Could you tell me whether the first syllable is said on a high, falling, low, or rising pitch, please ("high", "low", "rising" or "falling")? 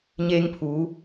high